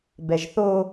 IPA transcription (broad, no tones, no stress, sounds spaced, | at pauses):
b ɛ ʒ θ o